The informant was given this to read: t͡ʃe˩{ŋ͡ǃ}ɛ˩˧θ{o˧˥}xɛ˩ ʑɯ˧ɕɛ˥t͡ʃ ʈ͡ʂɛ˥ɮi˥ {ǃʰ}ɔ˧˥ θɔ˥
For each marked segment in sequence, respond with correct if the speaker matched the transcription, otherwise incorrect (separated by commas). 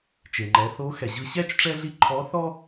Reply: correct, correct, correct